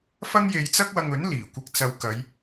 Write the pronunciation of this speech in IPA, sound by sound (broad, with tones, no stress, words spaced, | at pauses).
fɐ˥ŋje˧jt͡sɐ˥k̚wɐ˧ŋ ɵ˨˥nliː˨˩ kʷɪ˨˥k̚t͡sɐ˨˧w kɐ˨˧j